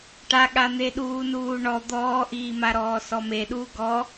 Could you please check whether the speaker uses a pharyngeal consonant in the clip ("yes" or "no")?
no